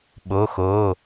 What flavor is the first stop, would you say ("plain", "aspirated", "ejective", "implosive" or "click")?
implosive